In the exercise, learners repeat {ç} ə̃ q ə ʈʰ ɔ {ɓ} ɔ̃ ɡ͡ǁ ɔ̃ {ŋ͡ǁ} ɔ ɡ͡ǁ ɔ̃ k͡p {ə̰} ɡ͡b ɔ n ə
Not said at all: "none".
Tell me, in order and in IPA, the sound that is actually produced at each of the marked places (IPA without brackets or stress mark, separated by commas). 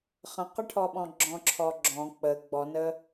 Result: χ, ɓ, ǁʰ, ə